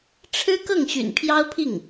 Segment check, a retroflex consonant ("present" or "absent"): present